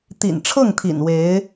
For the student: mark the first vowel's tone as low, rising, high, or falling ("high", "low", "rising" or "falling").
low